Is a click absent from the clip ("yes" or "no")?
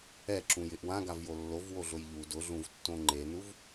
no